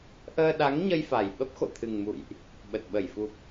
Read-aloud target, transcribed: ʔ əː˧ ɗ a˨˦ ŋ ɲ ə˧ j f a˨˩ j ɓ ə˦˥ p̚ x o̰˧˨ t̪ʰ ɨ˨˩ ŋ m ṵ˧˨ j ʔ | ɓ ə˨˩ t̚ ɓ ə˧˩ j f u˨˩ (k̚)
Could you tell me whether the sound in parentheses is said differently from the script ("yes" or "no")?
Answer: yes